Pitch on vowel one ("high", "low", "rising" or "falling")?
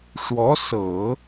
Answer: rising